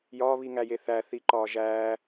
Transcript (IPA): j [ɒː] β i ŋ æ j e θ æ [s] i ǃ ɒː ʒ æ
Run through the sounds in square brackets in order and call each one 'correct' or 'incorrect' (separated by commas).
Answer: correct, incorrect